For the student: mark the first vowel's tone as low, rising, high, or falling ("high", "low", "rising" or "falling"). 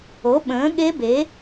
rising